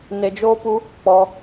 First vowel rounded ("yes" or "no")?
no